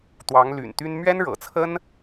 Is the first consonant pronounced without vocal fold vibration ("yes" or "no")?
yes